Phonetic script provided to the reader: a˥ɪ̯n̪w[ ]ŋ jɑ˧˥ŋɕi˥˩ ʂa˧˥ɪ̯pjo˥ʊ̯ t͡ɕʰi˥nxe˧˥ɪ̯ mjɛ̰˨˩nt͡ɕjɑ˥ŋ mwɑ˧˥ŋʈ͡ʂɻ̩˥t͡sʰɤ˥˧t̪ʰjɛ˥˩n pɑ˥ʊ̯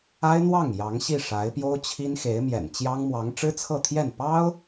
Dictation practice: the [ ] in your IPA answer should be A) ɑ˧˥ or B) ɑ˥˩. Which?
B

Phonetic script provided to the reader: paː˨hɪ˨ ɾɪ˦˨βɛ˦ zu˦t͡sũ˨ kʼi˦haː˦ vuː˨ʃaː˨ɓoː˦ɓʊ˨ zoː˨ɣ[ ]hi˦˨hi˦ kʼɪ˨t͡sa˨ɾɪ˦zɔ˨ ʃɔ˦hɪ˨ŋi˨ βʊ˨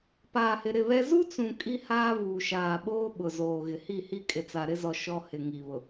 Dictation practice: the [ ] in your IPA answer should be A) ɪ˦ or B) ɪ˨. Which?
B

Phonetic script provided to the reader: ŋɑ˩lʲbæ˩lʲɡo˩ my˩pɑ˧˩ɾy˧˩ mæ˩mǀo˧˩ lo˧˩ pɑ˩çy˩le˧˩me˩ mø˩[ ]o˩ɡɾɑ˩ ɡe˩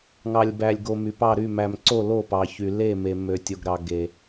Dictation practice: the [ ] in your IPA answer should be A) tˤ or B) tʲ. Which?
B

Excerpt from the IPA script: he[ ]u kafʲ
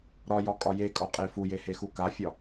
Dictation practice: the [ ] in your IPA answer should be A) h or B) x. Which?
B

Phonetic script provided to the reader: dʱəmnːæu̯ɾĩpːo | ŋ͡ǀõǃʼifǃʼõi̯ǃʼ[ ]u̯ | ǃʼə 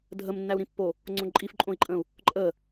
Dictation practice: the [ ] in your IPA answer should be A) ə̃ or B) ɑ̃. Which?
A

